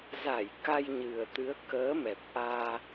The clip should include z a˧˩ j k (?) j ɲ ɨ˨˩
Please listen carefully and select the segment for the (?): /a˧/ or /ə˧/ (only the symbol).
a˧